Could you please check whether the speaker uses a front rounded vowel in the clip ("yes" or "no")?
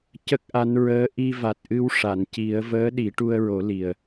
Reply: no